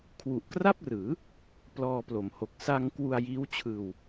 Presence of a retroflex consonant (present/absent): absent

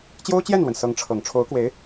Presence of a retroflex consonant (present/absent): present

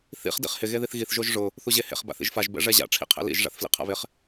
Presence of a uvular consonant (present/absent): present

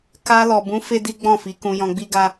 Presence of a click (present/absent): absent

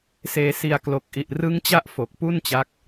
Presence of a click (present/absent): absent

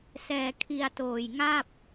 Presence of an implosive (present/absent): absent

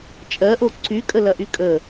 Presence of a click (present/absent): present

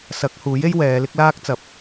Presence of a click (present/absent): absent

